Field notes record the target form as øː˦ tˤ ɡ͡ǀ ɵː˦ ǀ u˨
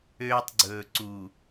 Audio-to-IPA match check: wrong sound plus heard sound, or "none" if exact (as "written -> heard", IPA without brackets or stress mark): ɵː˦ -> ɵː˨